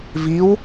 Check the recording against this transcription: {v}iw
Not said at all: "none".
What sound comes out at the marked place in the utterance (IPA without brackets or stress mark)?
v